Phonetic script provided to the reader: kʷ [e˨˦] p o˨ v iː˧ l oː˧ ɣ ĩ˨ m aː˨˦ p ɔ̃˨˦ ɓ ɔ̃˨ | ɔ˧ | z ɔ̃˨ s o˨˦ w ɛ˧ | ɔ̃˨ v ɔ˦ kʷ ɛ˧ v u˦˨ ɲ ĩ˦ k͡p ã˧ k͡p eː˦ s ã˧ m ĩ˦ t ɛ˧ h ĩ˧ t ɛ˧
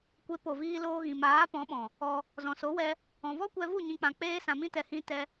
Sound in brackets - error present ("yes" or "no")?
no